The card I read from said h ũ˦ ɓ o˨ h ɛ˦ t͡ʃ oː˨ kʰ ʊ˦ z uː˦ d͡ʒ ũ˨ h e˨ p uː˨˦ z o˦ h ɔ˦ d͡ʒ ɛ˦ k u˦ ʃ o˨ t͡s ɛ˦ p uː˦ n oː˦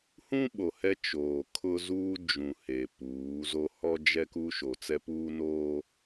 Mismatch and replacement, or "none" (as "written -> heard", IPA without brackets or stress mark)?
none